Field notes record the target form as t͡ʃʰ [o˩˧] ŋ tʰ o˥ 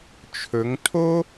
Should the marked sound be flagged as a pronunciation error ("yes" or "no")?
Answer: yes